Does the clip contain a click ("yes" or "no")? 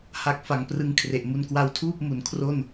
no